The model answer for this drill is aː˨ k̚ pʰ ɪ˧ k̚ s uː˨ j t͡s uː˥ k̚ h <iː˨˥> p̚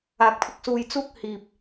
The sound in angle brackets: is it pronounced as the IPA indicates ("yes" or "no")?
no